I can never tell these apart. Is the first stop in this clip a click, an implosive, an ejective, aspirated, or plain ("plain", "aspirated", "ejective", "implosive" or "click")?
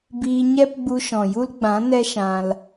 plain